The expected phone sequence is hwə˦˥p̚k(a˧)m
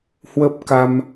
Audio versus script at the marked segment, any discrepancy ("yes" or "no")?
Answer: no